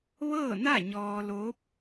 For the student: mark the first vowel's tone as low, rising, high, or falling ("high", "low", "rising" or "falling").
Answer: falling